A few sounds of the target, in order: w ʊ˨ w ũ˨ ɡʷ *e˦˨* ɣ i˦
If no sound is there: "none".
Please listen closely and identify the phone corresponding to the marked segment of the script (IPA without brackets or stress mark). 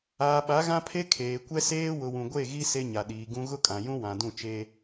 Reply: e˦˨